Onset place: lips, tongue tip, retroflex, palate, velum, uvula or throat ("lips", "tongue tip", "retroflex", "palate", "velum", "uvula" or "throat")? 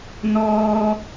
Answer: tongue tip